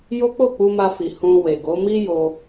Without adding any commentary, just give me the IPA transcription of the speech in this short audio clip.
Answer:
jo˦k͡po˦˨k͡pu˧ma˧ fi˨ hũ˧ we˨ɡo˨˦ mi˦jo˧

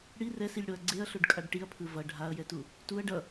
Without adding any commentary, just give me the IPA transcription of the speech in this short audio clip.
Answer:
ɽi rɛsilʲɽoɐ̯ ɡ͡ǀeɐ̯ɬoɖkʼaɖ ʈiɐ̯pʰɯ vʌ ɖʱaɐ̯jɛtu | tuɐ̯ ɖʌ

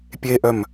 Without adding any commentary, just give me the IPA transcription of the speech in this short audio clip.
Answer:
pʲeʔœm

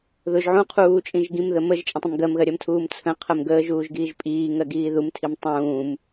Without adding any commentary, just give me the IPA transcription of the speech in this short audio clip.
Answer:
ðʊʒ ʕũqʰuːt͡ʃʼĩʒ ɡĩmðə məʒt͡ʃʼə̃tˤə̃m ɡɜmɣɜɾʲɜmtʰuːm t͡sʰə̃qʰɜm ɡəːʒuːʒɡiːʒ pʼiːŋɜɡiː ðumtʰim tˤũːm

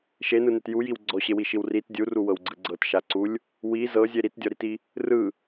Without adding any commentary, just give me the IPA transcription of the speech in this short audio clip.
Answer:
ʃenɯnet jujiw ɡ͡ǀɔɕewiʃiw rit dʲuruwɤwɡ͡ǀɯ ɡ͡ǀɤtʃaǀulʲ | wi zɤzʲe ɾitdʲɔɾiti | rɯ

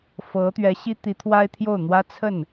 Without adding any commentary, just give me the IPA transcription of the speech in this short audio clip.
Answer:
fɤ˧˥t̪ɥɛ˧˥ɕi˥ t̪i˧˥t̪ʰwa˥ɪ̯t̪ʰjo˥˩ʊ̯n̪wä˥ t͡sʰə˥˩n

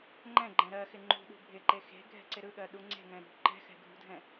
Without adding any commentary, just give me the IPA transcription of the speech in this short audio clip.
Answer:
ŋ͡ǃɛ̃ɡ͡ǃɛ̃ ɾɜ xɪŋ͡ǃṳɗṳ bʱɪǃe xe̤ ɡʱɛ̤ǀɪɾɯɠɜ ɗuŋ͡ǀe̤ŋɛ̃ ɾṳ ǃɛ̤xɛ̤ ɡʱṳdʱɛ̃

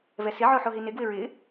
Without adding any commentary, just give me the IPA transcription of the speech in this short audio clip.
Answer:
vɛsɪ ʕoħoɦinɪ ɡwɪɹɪ

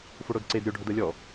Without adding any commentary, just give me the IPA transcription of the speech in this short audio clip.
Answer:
foɽodǀed ɾʲoɖʱod ɤlʲɔ

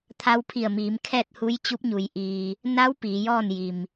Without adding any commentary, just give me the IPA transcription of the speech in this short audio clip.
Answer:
t̪ʰa˧wpʰi˧˩ə̯miː˩˧m kʰɛː˥˨t̚ hu˧˥jt͡ɕu˧˥p̚ɲu˩˧j ʔiː˧ | na˧˥w piː˩˧jɔː˥˨nji˩m

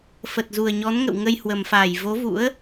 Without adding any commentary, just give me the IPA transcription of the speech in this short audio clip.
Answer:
fə˨˩t̚zu˨˩ə̯ɲɔ˨˦nŋə̰˧˨w ŋə˧jhwə˨˩mfaː˧˩j vo˨˦vṵ˧˥ə̯

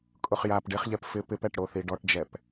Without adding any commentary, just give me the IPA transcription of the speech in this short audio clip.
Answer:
kʼʊχjap ɖeχʎɛp fɪ pɪpɛʈɽo θiɖɔʈd͡ʒɛp

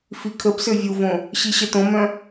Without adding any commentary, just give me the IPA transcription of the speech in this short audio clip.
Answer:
fikʰəbsø vʲuvõ | ɕiɕətõmœ̃

